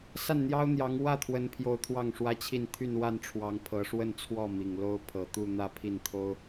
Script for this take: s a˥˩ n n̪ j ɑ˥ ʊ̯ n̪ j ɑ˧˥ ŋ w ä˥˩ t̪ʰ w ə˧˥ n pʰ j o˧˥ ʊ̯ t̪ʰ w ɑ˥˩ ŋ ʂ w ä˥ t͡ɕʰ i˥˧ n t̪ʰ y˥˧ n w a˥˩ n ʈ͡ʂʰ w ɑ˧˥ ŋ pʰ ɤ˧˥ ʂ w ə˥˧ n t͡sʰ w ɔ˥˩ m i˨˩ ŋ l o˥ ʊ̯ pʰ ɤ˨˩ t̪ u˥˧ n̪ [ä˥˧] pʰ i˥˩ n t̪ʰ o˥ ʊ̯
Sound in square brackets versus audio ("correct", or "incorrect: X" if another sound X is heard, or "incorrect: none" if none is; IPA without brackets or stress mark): correct